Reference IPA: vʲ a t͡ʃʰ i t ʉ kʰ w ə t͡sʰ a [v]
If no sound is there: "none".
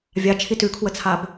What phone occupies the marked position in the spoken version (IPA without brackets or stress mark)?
b